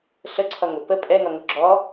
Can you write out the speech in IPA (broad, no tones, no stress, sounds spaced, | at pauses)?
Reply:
ɬ ə ǀʰ ʌ ŋ ʊ p ə pʼ ɛ ŋ ʌ ŋ ʊ ɡ͡ǁ ɔ